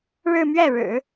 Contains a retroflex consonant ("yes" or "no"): yes